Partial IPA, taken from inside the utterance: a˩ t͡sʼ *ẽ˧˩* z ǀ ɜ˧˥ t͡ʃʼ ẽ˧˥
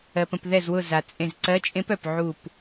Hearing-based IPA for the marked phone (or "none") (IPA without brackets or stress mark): ẽ˧˩